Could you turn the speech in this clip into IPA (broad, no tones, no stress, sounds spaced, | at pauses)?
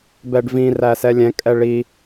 b ɛ ɖ v ĩ r æ s ɛ lʲ ɛ̃ kʼ ɛ ɭ i